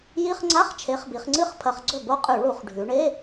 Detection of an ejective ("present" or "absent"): present